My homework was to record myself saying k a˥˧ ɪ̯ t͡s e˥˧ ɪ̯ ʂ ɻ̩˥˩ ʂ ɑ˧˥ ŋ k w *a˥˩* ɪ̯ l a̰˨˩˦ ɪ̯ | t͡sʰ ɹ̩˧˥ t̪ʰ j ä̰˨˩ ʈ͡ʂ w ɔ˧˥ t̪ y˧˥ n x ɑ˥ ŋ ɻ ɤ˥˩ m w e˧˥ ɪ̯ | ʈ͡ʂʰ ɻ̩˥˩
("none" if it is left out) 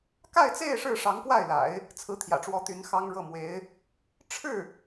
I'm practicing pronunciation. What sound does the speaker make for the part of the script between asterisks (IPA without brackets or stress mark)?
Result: a˥˩